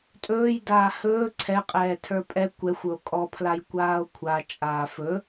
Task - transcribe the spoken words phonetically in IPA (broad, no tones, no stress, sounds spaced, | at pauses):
tʼ ɵː j d aː h ɵː ǀʰ ɛ qʼ ɛː tʰ ə˞ pʼ ɛ kʷ ɛ xʷ ɵ o̯ kʼ ɔ pʰ l a j kʷ aː o̯ kʷʰ a t͡ʃʼ aː f ɵ